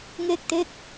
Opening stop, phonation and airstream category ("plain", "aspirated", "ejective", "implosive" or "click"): plain